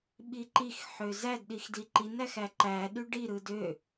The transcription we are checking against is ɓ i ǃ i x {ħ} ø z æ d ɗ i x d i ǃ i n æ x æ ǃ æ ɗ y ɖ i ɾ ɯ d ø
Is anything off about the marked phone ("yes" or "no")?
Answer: no